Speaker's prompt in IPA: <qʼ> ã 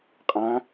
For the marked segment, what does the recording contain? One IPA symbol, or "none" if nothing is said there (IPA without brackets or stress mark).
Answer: qʼ